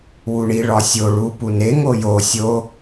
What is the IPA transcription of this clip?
w u ɳ i ɭ ɒ sʲ o ɭ u p u n e ŋ o j o sʲ o

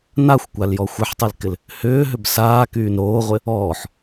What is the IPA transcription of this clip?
n a xʷ kʷ a l j ɔ xʷ ɪ ħ tˤ y l k ɪ l | h ʏː ɦ ʏ b s aː k yː n ɾ oː ʁʷ ɪ | ɔː ħ

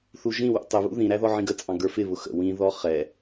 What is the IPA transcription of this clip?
θ u ʒ ĩ w ṵ tˤ ə β ṵ ð ĩ ɾ æ ð ɔ ʕ ĩ ɡ ə t͡sʼ ɑ̃ ɡ ə˞ f ɪ β ʊ x ə̰ w ĩ ð ɔ χ ɛ

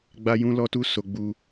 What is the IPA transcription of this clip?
ɡ͡b a˦ j ũ˦ l ɔ˦ t u˦ s o˧ ɡ͡b u˧

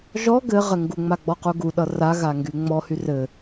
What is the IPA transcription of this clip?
ʒ ɔ ɡ ɘ ʁ ɘ ŋ ɡ u ŋ͡m a ɡ͡b ɔ q u ɡ u ɗ ʌ r a ɣ a ŋ ɡ y ŋ͡m ɔ h y r ɘ

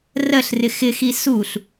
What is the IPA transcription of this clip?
r ɜ ɬ r ɪ x ɪ x i s u ɬ

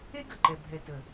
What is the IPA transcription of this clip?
e˦ ɡ ə˨ ǃ ɛ˨ bʱ ɛ˨ t ə˨

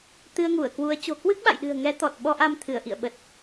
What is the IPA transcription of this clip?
t̪ ɨ˧ ə̯ ŋ u˧˩ ə̯ k w u˨˦ ə̯ t͡ɕ o̤˨˩ k w ɨ˦˥ k̚ ɓ a̰˧˨ j ɗ ɨ̤˨˩ ə̯ ŋ ɛ˨˦ t̪ ɔ˨˩ t̚ ɓ ɔ˧ ʔ a˧ m t̪ʰ ɨ˧˩ ə̯ ʔ ḭ˧˨ ə̯ ɓ ə˨˩ t̚

